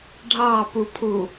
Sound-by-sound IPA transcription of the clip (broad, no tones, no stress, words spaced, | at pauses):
ɖʱɑpupʰu